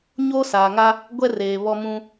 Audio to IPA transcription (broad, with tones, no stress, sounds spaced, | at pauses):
ɲ o˦ s aː˨ ŋ a˦ | ɡʷ ɛ˦ r eː˨ β ɔ˦ m ũ˦